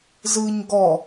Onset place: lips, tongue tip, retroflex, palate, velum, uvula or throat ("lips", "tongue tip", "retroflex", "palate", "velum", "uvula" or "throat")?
tongue tip